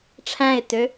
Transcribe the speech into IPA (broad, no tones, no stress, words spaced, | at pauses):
ʈ͡ʂʰæ̃ɪ̯tø